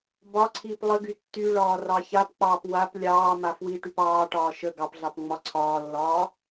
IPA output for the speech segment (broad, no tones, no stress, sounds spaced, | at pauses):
b ɒ ǀʰ iː p lˠ ə ɡ y tː y ɭ ɒː r ɑ ç a p k͡p ɑː p w a p lʲ ɑː m a f w i ʈ y p ɑː ʈ ɒː ʃ ə ɡ ɑ p ɮ ɑ p ŋ͡m ɒ ǀʰ ɒː lː ɒː